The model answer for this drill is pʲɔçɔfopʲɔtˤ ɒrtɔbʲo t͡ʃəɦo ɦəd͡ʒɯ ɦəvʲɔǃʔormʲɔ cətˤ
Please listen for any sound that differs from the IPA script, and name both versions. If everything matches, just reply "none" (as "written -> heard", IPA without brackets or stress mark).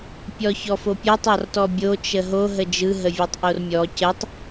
ǃ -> tˤ